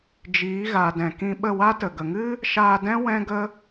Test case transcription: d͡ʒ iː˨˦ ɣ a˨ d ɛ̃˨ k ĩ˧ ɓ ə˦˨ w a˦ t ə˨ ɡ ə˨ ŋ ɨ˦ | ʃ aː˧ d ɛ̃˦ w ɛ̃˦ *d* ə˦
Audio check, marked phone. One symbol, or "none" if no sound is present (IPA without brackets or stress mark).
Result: ɡ